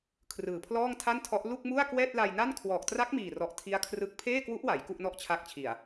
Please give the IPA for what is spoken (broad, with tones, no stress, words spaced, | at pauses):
kʰrɯː˨˩pʰlɔː˥˩ŋtʰa˥˩ntʰɔ˦˥ʔ lu˥˩k̚mu˥˩a̯kwɛː˥˩t̚ la˧jna˥˩n kʰwɔː˨˩k̚tra˦˥k̚miː˨˩rɔ˨˩ʔ tʰi˦˥a̯kʰrɯ˦˥k̚ pʰeː˥˩kwu˦˥ʔwa˩˦j ku˥˩ʔnɔ˥˩ʔt͡ɕʰa˦˥k̚t͡ɕʰi˨˩a̯